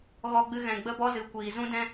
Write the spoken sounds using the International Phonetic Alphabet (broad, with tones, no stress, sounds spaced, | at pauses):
ɣ ɔ˦ ɡ͡b ɨ˦ ɣ ɛ̃˧ ɡ͡b ə˦ b ɔ˦ z ɨ˨˦ kʷ iː˨ z ũ˦ d ɛ̃˦